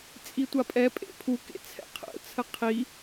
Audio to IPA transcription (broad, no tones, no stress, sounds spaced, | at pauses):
t͡sʼ i tʷ a pʼ ɛ pʼ ḛ pʰ u k ḛ t͡sʰ ɛ̰ qʰ ə̰ t͡sʰ ə qʰ i